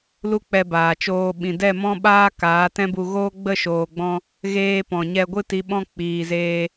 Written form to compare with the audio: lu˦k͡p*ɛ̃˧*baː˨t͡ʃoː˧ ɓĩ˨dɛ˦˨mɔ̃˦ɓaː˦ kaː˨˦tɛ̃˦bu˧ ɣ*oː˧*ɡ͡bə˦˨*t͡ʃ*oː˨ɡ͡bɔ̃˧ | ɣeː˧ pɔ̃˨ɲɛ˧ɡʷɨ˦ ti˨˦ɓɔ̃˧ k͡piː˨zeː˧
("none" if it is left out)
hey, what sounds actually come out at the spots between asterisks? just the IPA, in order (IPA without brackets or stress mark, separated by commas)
ɛ˧, oː˦, ʃ